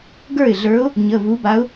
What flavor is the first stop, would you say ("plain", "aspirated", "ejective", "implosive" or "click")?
plain